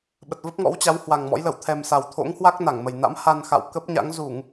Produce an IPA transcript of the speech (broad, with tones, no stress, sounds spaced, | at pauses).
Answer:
ɓ ə˨˩ t̚ v ə˦˥ p̚ ŋ ɔ̰˧˥ w t͡ɕ a˨˦ w h w a˨˩ ŋ m ɔ̰˧˥ j l ə˧˩ w t̪ʰ ɛ˨˩ m s a˨˩ w t̪ʰ o̰˧˥ ŋ h w a˦˥ k̚ n a˧˩ ŋ m ə˨˩ j n a̰˧˥ m h a˧ n x a̰˧˨ w k ə˦˥ p̚ ɲ a̰˧˥ ŋ z u˧˩˨ ŋ